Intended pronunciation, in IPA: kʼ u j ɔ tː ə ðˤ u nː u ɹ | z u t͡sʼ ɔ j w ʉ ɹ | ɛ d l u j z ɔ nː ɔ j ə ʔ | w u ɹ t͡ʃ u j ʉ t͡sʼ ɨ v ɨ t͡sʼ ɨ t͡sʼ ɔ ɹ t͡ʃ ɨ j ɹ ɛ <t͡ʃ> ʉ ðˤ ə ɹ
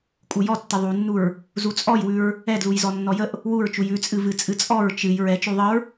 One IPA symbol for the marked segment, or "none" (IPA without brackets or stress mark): t͡ʃ